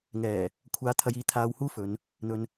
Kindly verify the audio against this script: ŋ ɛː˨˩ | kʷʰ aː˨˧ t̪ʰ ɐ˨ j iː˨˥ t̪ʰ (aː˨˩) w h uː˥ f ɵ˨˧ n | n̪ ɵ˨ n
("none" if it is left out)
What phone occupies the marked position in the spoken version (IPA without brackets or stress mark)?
aː˧